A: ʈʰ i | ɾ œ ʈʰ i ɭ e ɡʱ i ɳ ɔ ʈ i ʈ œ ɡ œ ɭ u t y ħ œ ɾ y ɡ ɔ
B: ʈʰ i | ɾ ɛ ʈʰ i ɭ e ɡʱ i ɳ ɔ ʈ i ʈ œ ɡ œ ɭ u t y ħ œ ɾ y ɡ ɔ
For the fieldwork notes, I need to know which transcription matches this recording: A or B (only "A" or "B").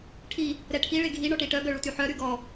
B